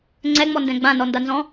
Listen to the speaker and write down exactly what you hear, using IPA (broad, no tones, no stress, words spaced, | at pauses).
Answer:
ŋ͡ǀɛŋ͡mɔndɛ̃ ɡ͡bãnɔndanzɔ̃